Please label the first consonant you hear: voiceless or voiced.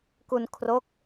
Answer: voiceless